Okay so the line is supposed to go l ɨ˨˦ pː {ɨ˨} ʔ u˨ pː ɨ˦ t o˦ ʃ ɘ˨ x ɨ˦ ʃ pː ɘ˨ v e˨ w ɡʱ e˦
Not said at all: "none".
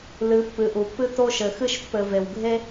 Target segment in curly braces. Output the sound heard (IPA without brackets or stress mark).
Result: ɨ˨